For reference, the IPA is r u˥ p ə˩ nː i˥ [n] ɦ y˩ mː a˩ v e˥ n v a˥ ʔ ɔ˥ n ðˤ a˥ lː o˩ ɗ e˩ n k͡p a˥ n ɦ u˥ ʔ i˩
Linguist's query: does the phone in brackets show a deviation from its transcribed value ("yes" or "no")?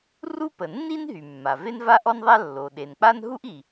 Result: no